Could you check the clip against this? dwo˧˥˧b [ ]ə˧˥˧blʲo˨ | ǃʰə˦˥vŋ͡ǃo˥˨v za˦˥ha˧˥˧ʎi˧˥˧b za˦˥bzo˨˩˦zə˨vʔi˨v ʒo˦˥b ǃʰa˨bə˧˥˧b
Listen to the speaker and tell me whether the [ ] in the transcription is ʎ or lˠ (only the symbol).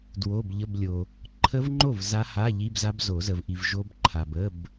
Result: ʎ